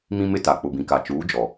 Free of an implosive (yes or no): yes